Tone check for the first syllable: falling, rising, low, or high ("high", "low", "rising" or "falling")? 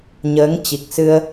rising